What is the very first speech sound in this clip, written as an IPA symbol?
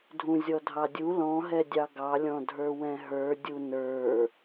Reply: dʱ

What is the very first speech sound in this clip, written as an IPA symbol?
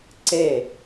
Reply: ǀ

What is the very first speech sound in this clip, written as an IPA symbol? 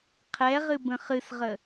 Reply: qʰ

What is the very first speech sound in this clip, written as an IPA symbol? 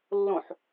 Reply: lː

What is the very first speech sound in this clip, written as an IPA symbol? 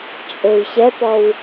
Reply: t͡ʃʼ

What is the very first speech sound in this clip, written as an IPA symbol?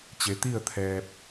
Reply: t͡ɕ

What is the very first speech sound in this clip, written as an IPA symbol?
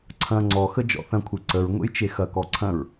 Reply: ǀʰ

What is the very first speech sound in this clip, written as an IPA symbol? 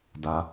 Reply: d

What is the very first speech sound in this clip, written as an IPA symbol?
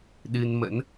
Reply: ɗ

